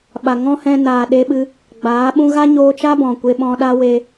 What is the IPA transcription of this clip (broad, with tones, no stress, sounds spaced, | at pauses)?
ɓ a˨ ŋ ɔ̃˦ h ɛ̃˧ n aː˨ ɗ e˧ ɓ ɨ˧ | ɡ͡b aː˨˦ ɓ ũ˦ ɣ a˦ ɲ oː˧ t͡ʃ a˦ b ɔ̃˨ kʷ e˧ ɓ ɔ̃˧ ɗ a˦ w e˦